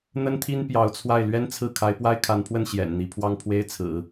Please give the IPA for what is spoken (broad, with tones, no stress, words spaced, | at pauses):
n̪ə˥nt̪ʰi˥n pjɑ˧˥ʊ̯t͡sʰwa˥˩ɪ̯ lɥɛ˥nt͡sʰɹ̩˥˩ kʰa˧˥ɪ̯pwa˥ɪ̯kʰa˧˥npʰwə˥˩n ɕjɛ̰˨˩nn̪i˧˥ pʰwɑ˥˩ŋpʰwe˥ɪ̯t͡sʰɹ̩˨˩˦